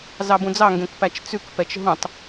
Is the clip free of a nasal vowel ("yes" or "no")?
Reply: no